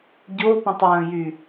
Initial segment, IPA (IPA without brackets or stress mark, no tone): ɟ